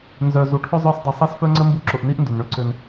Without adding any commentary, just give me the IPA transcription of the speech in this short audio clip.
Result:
n z œ˨ z u˨ ʈʰ ʊ˥ zˤ œ˦ s dˤ ʊ˨ sˤ i˦ s f œ˥ ŋ͡ǀ ə˥ m b u˦ ǁ ʊ˨ ʔ n i˥ ʔ n d ʊ˩ n ɳ ø˥ ǀ ø˨ n

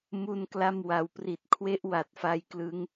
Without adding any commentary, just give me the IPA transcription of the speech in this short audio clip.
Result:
m u˥˩ n k l a˥˩ m w a˩˦ w p r i˨˩ t̚ kʰ w e˥˩ ʔ w a˨˩ t̚ f a˦˥ j k l ɯ˦˥ ŋ

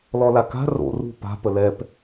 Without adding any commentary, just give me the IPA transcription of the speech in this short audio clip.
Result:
l ɔ l a k a̤ r o̰ r ṳ p a̤ p ə l ɛ p

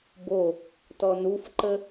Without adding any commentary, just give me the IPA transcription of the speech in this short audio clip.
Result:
b o | t ɔ n u f ǃ ə

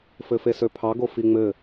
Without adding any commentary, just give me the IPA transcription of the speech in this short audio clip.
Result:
f ɘ f e s ø pʰ ɑ ɡ o f i ŋ͡m ɘ

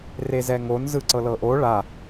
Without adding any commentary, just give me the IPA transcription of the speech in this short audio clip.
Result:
r e z ɛ ŋ o n z ɯ ǀ ɤ l ɤ ʔ o ɭ a

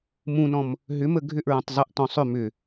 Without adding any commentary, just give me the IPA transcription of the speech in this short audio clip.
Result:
m ũ n ɔ̃ m | ɦ ʏ m ə ɡʱ ʏ ʔ ɹ õ tˤ zˤ ə ʔ t ɔ̃ sˤ ʏ m ʏ

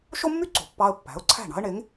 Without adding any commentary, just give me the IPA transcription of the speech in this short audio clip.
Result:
ʃ o˥ mː y˥ ǀ o̤˩ pː ɑ˧ ə̯ pː æ̤˩˥ ʊ̯ ǀʰ æ̤˥˩ ɳ ɑ̤˥ ə̯ ɳ e˩˥ ŋ

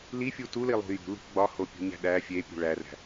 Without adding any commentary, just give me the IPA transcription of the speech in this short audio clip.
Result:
l i fʲ u t u l i lˠ ṳ j ṳ l ṳ ɡ͡b ɒ h o pʲ ṳ ɲ æ̤ ɗ æ fʲ e pʲ ṳ ɭ æ r æ̤

